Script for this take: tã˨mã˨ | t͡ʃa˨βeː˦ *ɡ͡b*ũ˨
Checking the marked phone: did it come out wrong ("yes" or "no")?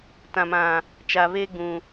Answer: no